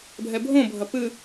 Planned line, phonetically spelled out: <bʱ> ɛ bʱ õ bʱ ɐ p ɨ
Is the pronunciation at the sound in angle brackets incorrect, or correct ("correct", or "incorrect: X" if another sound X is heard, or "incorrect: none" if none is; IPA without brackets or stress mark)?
correct